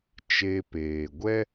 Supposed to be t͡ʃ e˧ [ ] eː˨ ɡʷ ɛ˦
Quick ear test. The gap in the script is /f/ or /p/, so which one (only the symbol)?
p